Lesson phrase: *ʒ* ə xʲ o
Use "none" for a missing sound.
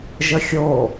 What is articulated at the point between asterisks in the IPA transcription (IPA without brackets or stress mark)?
ʒ